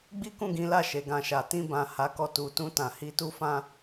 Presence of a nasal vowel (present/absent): present